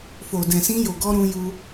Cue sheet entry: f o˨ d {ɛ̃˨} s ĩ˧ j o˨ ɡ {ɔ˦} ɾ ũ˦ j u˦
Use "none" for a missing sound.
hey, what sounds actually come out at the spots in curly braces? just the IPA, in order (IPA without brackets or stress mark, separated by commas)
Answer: ɛ̃˨, ɔ˧